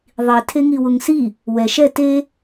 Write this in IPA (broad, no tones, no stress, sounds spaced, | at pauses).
ðˤ i tʰ e ŋ i w ʊ ŋ s i | w ɛ ʃ ɛ t e